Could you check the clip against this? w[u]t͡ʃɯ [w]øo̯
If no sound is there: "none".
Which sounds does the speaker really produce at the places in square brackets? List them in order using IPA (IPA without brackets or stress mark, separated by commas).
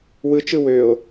ɯ, w